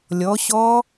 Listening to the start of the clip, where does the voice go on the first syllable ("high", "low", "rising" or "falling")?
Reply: rising